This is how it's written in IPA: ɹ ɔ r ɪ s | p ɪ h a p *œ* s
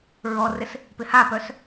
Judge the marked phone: correct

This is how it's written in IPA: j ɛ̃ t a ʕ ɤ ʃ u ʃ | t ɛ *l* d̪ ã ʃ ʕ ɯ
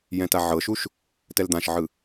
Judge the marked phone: correct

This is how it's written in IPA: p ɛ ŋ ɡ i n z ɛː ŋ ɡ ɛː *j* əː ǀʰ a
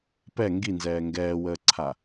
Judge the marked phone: incorrect: w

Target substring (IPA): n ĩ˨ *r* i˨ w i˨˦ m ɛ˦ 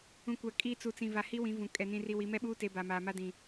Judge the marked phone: correct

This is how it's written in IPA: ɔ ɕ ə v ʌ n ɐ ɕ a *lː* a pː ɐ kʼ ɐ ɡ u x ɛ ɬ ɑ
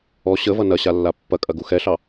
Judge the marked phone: correct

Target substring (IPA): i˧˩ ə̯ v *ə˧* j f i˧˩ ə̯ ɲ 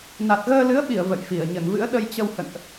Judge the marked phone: incorrect: ə̰˧˨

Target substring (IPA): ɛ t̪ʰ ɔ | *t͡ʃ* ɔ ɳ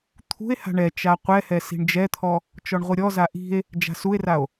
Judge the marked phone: correct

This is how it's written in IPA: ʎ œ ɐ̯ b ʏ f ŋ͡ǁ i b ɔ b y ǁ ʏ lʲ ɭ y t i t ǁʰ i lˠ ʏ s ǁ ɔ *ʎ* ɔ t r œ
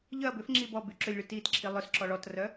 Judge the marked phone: incorrect: ɭ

